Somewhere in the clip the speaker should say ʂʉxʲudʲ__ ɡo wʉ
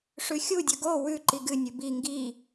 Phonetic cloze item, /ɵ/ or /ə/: ɵ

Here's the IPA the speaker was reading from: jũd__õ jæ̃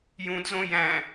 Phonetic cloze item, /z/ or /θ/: z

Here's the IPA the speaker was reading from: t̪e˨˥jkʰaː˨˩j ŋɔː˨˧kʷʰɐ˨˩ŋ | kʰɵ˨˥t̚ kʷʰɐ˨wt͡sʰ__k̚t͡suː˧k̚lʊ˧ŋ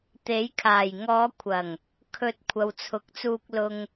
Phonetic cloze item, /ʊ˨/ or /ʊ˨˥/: ʊ˨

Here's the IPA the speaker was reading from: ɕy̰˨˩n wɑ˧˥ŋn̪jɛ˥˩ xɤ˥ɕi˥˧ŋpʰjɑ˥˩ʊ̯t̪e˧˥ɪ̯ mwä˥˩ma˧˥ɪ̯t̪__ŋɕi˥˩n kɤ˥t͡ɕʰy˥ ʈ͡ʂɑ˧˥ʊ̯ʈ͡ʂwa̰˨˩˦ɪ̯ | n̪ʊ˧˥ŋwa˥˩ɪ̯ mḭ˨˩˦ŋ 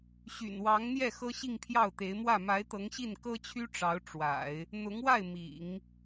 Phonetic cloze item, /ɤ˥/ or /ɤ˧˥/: ɤ˧˥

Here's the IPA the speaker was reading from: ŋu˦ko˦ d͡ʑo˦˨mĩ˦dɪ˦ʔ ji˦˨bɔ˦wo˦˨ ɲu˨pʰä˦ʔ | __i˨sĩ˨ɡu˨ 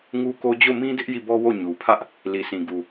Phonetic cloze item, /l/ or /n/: l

